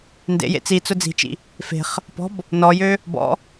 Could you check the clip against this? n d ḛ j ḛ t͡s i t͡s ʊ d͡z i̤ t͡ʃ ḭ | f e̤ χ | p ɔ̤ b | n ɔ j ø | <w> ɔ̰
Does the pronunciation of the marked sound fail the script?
yes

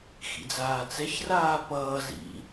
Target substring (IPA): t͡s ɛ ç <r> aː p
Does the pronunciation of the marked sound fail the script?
no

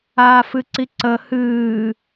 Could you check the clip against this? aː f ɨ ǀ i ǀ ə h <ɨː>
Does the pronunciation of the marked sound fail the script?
no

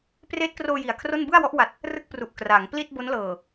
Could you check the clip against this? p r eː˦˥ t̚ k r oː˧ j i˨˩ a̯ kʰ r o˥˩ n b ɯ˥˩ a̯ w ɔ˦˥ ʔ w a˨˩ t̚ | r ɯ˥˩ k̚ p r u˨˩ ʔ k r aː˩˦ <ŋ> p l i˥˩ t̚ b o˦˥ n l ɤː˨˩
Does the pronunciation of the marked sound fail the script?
no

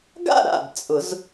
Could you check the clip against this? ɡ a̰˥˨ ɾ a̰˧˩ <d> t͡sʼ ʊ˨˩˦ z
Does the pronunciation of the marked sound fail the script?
no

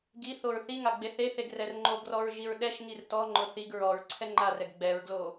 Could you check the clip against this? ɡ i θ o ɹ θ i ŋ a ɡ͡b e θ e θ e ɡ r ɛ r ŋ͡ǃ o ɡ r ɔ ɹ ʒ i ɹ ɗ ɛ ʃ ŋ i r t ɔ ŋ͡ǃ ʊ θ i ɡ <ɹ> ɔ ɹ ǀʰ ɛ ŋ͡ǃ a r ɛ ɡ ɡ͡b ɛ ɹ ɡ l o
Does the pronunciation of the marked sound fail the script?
no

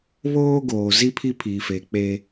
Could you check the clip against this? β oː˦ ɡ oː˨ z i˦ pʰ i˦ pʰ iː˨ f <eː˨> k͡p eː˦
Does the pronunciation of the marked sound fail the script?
no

